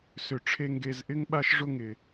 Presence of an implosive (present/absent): present